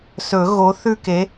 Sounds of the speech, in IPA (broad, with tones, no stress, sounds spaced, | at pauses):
s ɵ˨˩˦ ɣ o˨˥ θ ʉ˥˧ k e˨˥